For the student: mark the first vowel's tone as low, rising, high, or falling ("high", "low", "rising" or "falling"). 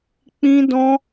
high